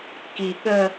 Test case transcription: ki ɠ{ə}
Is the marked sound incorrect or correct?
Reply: correct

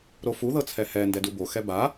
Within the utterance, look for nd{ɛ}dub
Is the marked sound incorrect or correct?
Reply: correct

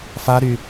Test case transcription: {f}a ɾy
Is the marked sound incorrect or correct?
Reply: correct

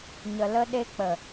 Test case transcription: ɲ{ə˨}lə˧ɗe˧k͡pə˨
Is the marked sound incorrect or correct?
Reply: correct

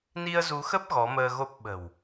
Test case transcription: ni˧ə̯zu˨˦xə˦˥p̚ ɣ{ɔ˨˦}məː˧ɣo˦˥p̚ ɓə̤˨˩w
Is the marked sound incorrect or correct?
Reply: correct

